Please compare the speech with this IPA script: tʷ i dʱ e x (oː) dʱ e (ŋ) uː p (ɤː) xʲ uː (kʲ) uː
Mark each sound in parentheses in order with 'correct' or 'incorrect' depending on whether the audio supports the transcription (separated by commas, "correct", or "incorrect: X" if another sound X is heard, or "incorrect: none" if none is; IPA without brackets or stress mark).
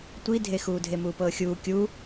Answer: incorrect: uː, incorrect: m, correct, correct